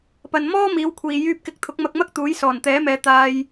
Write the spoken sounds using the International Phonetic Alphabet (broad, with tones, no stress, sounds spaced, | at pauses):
p ɐ˨ n m ɔː˥ m iː˨˧ w kʷʰ iː˨ j yː˧ p̚ k ɪ˨˥ k̚ t̪ʰ ʊ˨˥ k̚ m ɐ˧ k̚ m ɐ˥ k̚ t̪ uː˨˥ j s ɔː˨˩ n t̪ ɛː˨˥ m ɛː˨˧ t̪ aː˧ j